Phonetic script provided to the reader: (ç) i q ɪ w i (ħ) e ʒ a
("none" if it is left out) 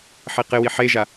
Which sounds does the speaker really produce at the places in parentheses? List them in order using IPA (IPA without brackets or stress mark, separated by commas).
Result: ħ, ħ